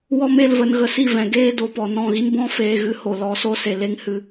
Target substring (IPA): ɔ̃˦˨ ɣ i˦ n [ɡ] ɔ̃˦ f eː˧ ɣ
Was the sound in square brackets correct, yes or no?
no